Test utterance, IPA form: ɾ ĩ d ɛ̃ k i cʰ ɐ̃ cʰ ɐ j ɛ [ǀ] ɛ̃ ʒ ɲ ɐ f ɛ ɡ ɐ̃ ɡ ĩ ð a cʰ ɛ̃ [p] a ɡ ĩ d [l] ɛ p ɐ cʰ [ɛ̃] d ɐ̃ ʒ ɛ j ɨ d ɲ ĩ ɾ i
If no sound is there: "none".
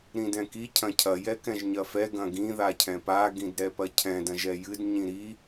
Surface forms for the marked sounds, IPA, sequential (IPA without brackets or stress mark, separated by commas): k, p, ɾ, ɛ̃